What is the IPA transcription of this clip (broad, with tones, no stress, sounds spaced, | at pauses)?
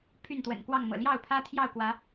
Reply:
pʰ y˥˨ n t̪ w ə̰˨˩ n k w ɑ˥˨ ŋ m ɤ̰˨˩ l j ɑ˥˨ ʊ̯ pʰ ä˦ t̪ʰ j ɑ˥˨ ʊ̯ k w ä˨˦